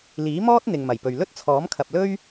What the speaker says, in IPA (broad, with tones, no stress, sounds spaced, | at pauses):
l iː˨˥ m ɔː˥ t̚ n̪ ɪ˨ ŋ m ɐ˨˩ j p ɵ˨ ɥ l ɵ˥ t̚ t͡sʰ ɔː˨˥ m kʰ ɐ˨ p̚ l ɵ˥ ɥ